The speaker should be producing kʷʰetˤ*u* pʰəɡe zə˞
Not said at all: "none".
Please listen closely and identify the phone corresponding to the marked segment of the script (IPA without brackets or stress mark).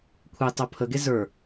o